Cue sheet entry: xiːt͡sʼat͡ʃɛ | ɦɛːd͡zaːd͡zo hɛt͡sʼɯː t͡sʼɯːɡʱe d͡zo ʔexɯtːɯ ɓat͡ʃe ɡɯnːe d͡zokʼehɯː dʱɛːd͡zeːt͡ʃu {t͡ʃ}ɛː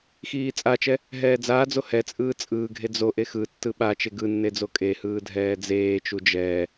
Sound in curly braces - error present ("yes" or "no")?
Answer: yes